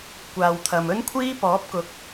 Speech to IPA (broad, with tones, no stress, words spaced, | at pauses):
kʷaː˨wt̪ʰɐ˨m ɵ˥nkʷʰiː˥pɔː˨˥p̚kʊ˨˥k̚